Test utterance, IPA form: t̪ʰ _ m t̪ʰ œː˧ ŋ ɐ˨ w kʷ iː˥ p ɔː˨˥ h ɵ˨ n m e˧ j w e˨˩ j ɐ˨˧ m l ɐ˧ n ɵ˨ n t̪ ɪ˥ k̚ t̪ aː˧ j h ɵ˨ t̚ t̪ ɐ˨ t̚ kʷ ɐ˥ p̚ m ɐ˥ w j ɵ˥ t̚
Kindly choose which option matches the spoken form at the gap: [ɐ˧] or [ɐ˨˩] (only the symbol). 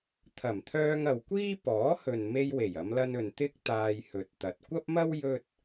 ɐ˨˩